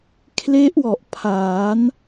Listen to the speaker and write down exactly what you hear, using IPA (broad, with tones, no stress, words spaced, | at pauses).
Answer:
kʰle˦˥ʔwɔ˨˩ʔpʰaː˩˦n